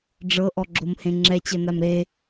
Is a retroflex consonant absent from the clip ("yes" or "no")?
no